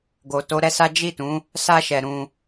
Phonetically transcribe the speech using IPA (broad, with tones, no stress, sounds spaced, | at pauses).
ɡ o˨ t o˨˦ ɾ ɛ˦ s a˦ d͡ʒ i˦˨ t ũ˨˦ | s a˧ ʃ ɛ˨ ɾ ũ˧